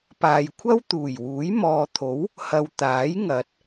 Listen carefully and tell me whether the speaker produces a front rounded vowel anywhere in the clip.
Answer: no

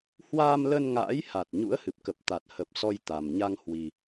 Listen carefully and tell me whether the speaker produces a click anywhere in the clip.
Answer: no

